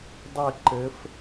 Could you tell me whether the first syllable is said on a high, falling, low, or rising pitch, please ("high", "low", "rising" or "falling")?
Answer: falling